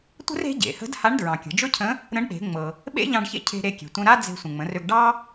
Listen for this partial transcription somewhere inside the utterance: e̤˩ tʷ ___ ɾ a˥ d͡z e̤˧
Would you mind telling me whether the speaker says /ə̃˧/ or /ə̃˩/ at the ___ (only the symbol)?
ə̃˧